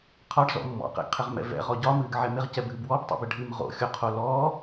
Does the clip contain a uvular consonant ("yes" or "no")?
yes